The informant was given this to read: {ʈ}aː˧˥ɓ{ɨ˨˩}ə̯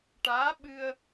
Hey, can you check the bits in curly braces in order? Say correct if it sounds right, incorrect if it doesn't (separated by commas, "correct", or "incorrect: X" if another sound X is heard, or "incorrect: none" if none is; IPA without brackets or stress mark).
correct, incorrect: ɨ˧